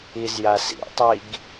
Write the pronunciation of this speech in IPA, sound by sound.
izja sḭtˤiɡ

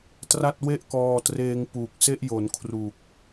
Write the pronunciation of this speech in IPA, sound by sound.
tra˥˩t̚we˥˩ʔkɔː˧treː˧ŋ puː˨˩k̚se˦˥ʔjo˩˦n kʰru˨˩k̚

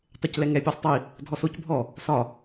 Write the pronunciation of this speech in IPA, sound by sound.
tˤeclɛŋɛ pʲɯsˤtˤi | dʱɔsoc bʱɔ | sɒ

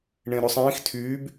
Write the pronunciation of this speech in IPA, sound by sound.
ɳẽɾɵsˤĩːx tʰyːb

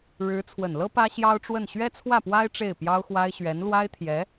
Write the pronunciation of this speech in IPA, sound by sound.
ɻɻ̩˧˥ t͡sʰwə˨˩nlɤ˥ pä˥ɕjɑ˥ʊ̯ʈ͡ʂwə˥˩n ɕɥɛ˥t͡sʰwä˥˩pwa˥ɪ̯ ʈ͡ʂe˥˩ɪ̯pjɑ˥ʊ̯xwa˥ɪ̯ ɕɥɛ˧˥nlwa˥ɪ̯t̪ʰjɛ˧˥

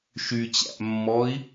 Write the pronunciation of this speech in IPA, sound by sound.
ʃyt͡ɕæ̰ʔmːɔi̯

